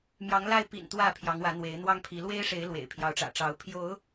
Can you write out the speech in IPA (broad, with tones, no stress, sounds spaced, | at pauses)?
m j ɑ˨˦ ŋ l a˧ ɪ̯ p ḭ˨˩ n t̪ w ä˥˨ pʰ j ɑ˨˦ ŋ w ä˨˦ n̪ w e˨˦ ɪ̯ n̪ w ɑ˦ ŋ pʰ i˨˦ l w e˦ ɪ̯ ʂ e˨˦ ɪ̯ l w ḛ˨˩ ɪ̯ pʰ j ɑ˨˦ ʊ̯ ʈ͡ʂ ä̰˨˩ ʈ͡ʂ ɑ˨˦ ʊ̯ pʰ j o˨˦ ʊ̯